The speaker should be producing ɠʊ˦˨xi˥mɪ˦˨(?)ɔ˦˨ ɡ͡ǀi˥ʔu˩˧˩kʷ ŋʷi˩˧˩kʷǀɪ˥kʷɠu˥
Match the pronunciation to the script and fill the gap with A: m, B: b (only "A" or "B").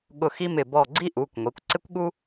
B